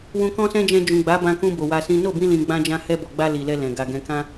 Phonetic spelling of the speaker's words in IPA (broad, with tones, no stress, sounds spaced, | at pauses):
w ũ˧ k ɔ̃˦ s ɛ̃˦ d͡ʒ ɛ̃˧ d͡ʒ ũ˨ ɡ͡b a˨˦ b ã˧ k ũ˧ b o˨ w a˧ s ĩ˦ n o˦˨ b ĩ˧ l ĩ˨ ɡ͡b ã˧ d͡ʒ ã˧ h ɛ˧ b ɔ˨ ɡ͡b a˧ l i˨ l ɛ˧ l ɛ̃˨ ɡ a˨ ɡ ɛ̃˨ k ã˧